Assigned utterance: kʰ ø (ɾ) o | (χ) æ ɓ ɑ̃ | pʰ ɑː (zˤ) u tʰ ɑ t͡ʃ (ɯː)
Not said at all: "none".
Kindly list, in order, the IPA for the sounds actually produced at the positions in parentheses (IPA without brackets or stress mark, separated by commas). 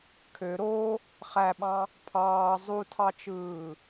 ɾ, χ, zˤ, ɯː